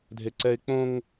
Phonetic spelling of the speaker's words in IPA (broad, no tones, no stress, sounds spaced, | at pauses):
dʱ e ǀ ɛ ɪ̯ k͡p õ ŋ